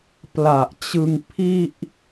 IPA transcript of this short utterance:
p l a˨˩ ʔ t͡ɕ ɯ˧ ŋ pʰ i˥˩ ʔ

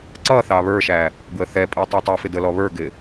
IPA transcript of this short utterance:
ǀ ʌ θ ɑ β ə˞ ʃ æ | ɡ w ə θ ɛ pʼ i tˤ æ tˤ ɪ f ɪ d ə l ɔ β ə˞ ɡ ɪ

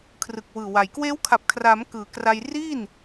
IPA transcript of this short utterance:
kʰ r ɯ˨˩ k̚ w ɯː˨˩ w a˩˦ j k w eː˦˥ w kʰ a˨˩ p̚ kʰ r aː˩˦ m k ɯː˩˦ k r a˧ j r iː˥˩ n

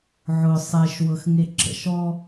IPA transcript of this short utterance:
ʕ ʊ sˤ e ʃ w ɤ x ŋ e ǁ ə̰ ʃ ɔ

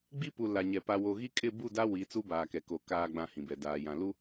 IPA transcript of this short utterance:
ɡ͡b i˦ p u˨ l a˨ ɲ ɛ˨ p a˨ w o˨ ɣ i˦ kʼ ɪ˦˨ b u˦˨ d a˦ w i˨˦ t͡s u˦ b aː˨ k ɛ˨ k o˨ k aː˨ ɡ͡b ã˨ h ĩ˨ b ɛ˨ d aː˨ j ã˨ l u˦

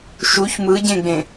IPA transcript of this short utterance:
ʃ u ç m ɯ ɟ ẽ ɡ͡b ẽ

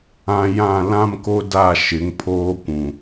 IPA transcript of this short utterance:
ã˨ j ã˦˨ l ã˦ m k o˦ d a˦˨ ʃ ɪ˨˦ ŋ pʰ oː˦ kʷ ũ˨

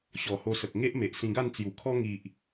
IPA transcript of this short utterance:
ɕ ɔ˨˩ h o˧ s ə˨ k̚ ŋ e˦ ʔ m e˨ ʔ s ĩ˧ ɡ a˥˧ n t͡s j u˨˩ kʰ ɔ˦ ŋ i˨ ʔ

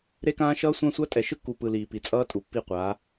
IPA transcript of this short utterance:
ɾ e˦ k ãː˦ ʃ ʌː˦ sʷ ã˦ sʷ a˦ tʼ ɛ˨ ʃ ɯ˦ kː uː˨ p ɯ˨ l iː˨ p i˨ t͡sʼ ʌː˦ tʼ u˨ pː i˦˨ qʷ a˨˦

